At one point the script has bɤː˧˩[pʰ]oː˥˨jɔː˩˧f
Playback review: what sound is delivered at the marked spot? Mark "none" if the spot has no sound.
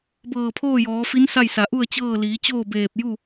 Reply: pʰ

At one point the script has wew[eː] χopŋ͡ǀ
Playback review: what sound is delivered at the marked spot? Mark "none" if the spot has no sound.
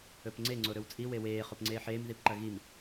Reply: eː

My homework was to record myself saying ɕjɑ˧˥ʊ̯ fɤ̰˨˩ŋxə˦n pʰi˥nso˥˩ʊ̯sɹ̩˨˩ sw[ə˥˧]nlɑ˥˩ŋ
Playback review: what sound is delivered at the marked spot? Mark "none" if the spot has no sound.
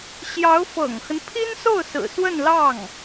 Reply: ə˥˧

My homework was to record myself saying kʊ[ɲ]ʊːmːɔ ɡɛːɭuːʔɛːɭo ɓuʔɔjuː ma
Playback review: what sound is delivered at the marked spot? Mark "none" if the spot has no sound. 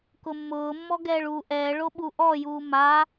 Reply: mː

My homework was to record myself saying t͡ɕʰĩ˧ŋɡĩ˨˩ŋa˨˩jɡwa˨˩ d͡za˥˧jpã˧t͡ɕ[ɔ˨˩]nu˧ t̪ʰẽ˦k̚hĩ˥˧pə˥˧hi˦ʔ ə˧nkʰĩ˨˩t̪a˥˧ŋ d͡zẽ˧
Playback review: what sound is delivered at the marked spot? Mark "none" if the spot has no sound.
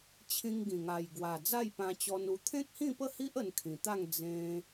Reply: ɔ˧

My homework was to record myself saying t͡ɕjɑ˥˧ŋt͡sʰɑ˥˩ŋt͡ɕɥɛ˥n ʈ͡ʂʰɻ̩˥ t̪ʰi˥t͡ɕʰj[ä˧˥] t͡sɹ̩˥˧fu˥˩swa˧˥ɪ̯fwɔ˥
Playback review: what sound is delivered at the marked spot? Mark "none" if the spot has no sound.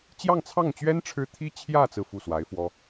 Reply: ä˥˧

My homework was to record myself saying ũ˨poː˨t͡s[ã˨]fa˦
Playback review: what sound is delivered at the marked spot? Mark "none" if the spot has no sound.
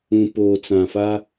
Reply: ã˨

